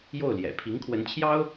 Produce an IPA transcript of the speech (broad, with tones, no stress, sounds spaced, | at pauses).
j o˥˩ ʊ̯ l j ɛ̰˨˩ pʰ i˧˥ ŋ kʰ w ə˧˥ n t͡ɕʰ j ɑ˥ ʊ̯